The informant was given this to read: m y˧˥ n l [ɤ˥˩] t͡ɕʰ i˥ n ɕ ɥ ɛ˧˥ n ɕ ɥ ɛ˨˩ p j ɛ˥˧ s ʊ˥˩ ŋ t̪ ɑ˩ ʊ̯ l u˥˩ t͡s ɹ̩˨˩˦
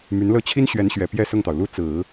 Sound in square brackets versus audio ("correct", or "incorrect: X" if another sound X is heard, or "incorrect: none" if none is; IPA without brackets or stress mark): correct